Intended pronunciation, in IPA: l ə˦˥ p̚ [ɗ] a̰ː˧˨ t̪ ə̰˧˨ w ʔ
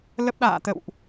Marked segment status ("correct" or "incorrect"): correct